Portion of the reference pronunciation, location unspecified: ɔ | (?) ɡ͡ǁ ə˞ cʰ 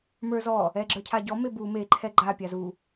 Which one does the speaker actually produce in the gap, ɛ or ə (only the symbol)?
ɛ